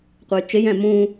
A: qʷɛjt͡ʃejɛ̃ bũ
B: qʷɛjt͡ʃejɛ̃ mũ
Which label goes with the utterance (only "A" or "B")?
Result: B